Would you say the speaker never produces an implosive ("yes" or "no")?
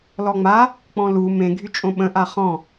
no